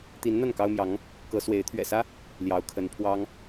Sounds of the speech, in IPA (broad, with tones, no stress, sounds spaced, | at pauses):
t̪ i˧˥ n n̪ a˥˩ n k ɑ˥ ʊ̯ m j ɑ˧˥ ŋ | k ɤ˧˥ s w e˧˥ ɪ̯ t̪ʰ ɥ ɛ̰˨˩ s ä˥ | l j ɑ˧˥ ʊ̯ kʰ ə˧˥ n pʰ w ɑ˥ ŋ